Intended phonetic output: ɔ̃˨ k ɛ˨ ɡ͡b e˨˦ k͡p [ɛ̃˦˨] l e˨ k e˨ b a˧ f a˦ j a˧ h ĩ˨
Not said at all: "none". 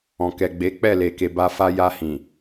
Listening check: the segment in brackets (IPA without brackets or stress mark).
ɛ˦˨